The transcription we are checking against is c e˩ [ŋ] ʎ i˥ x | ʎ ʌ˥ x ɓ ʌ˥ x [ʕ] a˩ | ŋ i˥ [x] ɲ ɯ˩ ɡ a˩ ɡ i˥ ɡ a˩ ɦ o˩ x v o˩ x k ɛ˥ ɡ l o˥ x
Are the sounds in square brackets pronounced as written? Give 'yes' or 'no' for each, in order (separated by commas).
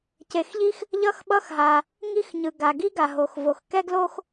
no, no, yes